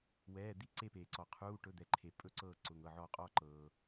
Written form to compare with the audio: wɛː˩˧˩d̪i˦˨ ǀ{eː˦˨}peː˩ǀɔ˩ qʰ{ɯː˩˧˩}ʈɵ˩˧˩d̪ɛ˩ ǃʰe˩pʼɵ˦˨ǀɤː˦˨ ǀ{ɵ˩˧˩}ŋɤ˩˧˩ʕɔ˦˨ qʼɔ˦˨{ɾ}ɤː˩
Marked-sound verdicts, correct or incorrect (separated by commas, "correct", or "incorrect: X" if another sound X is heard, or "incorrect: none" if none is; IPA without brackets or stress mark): incorrect: e˦˨, incorrect: uː˩˧˩, incorrect: ʊ˩˧˩, incorrect: ǃ